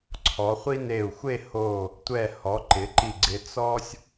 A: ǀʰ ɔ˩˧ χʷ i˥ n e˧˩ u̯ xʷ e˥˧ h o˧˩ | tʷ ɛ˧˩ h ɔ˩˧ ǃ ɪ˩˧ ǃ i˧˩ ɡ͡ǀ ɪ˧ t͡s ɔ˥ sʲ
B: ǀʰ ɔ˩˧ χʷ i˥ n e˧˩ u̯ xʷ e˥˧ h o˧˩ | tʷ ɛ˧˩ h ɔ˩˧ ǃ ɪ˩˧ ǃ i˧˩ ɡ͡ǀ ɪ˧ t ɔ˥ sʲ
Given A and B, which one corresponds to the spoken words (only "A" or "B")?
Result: A